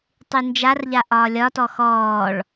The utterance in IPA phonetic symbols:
tˤynd͡ʒarʎa ʔɒːlʲɒtɔ xɔːɭ

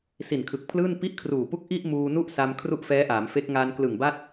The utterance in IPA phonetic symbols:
si˨˩nkʰɯ˨˩k̚pʰlɯː˥˩n pi˥˩ʔkʰruː˨˩pu˥˩k̚ ʔi˥˩ʔ muː˧nu˥˩ʔ sa˧m kʰru˥˩ʔfɛː˦˥ʔaː˩˦mfe˦˥k̚ ŋa˧n klɯ˨˩ŋba˥˩t̚

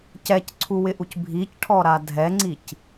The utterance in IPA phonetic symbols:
cɛcǀʰuwɪʔuc bʱicʈʰɔɾa dʱɛŋ͡ǀic

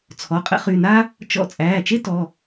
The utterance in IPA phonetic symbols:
t͡sʰɔ˩˧˩qʼə̰˥χy˩˧˩na˥ | t͡ʃɔ̰˥ t͡sʼæː˩˧˩t͡ʃe˥ tɔ˩˧˩

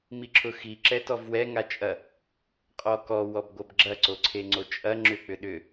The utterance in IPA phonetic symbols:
miǁʰʊxi ǁɛtɔvwɛ ŋat͡ʃʼɐ | qʼɔkɔ wɔbɡʷɐbɡ͡ǁɐ ǀoǀʰeŋ͡ǀot͡ʃʼɐ ŋ͡ǁʏ k͡pʏɗʏ

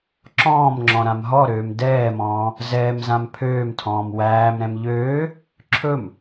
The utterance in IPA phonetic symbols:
ǁɔ̃ːmŋ͡ǁɔ̃ ɾãmɦɔɾøːm dɛːmɔ̃ː | zɛːmzãm pʰøːmtʰɔ̃ːm wæːmɾɛ̃m ʎøː | ǁʰɵm

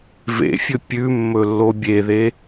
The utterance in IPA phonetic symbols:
vḛfʲɵ pʲʉ mːɵlːobʲeðe

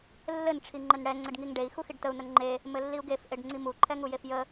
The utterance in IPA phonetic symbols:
lːɘn ʈ͡ʂʰiŋ͡ǃɘnɽɛ ŋ͡ǀɘɖŋiŋɖei̯ xuxiɖtəu̯ nəŋŋ͡ǃe | mɘlːiu̯ɡef ʔeɖŋ͡ǀimu ǃʰɛŋujefjə

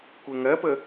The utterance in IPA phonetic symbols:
kʷeŋɜpə

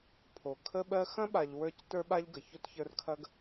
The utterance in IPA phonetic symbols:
pʰo˩ kʰə˦ɓɜ˦ xɐ̃˥ɓa˨ʎ wə˞˦c tə˞˦ɓa˦ʎɡə˩ ço˥tçə˞˦rkʰɐ˥ɡ

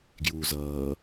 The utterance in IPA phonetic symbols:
ɡjuːzʌː

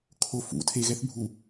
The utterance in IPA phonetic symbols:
kʰo fṵ tʰe ɣɛθbʱu

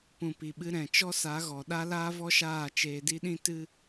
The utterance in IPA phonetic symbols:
pũ˨pi˨ɓɨ˧ɾɛ̃˨ t͡ʃɔ˦sa˨˦ɣɔ˨ ɗa˦laː˦vɔ˦ʃaː˦˨ t͡ʃeː˧di˦ɗĩ˦ tɨ˦

